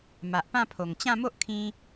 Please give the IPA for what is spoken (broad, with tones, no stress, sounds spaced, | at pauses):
m a˨ ʔ p ã˥˧ pʰ o˨˩ ŋ t͡ɕ ã˥˧ m o˦ ʔ kʰ ĩ˧